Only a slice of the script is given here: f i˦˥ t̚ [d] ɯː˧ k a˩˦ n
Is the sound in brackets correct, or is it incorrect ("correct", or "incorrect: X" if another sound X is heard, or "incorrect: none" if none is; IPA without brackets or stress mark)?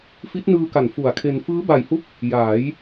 incorrect: n